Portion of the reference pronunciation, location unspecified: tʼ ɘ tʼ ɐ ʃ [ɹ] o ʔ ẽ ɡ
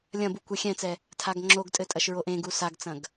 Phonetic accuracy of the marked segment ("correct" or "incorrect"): correct